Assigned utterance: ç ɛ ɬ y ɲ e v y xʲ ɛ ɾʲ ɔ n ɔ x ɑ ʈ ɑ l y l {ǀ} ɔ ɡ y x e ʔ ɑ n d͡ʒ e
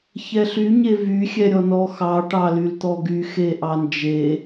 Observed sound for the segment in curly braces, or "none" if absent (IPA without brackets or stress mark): t̪